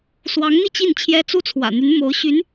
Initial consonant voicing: voiceless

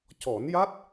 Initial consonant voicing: voiceless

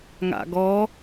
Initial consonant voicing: voiced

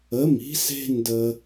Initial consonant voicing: voiced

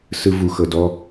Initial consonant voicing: voiceless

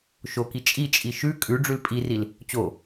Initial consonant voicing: voiceless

